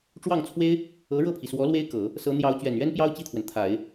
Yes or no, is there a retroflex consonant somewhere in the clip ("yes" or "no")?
yes